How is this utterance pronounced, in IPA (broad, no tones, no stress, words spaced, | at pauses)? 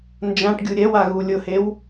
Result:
nd͡ʒãʈɡʲu ɾʲɛwa ɣulʲʊhew